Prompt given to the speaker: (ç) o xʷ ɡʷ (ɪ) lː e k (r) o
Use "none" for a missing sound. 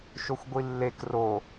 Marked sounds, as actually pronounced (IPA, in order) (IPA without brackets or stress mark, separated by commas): ʃ, i, r